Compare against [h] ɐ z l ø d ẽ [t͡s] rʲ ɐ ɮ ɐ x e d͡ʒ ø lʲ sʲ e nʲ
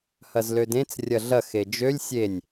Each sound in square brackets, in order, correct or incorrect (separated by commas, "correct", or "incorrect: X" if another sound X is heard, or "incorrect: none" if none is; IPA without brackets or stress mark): correct, correct